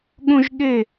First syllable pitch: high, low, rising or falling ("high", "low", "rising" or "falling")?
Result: high